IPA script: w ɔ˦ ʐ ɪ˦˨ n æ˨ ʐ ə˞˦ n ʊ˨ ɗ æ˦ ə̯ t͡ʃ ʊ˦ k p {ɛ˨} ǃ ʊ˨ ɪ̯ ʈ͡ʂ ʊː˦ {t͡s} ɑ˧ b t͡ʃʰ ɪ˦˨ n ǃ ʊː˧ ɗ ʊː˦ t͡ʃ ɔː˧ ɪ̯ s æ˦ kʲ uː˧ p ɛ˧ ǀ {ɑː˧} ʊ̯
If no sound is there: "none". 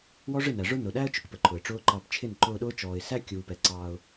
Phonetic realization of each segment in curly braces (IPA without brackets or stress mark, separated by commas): ə˨, ǃ, ɑː˧